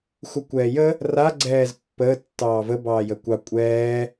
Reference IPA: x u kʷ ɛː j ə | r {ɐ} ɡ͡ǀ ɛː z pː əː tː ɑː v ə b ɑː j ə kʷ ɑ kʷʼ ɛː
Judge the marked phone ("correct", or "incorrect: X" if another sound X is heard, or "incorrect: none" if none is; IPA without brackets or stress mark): incorrect: a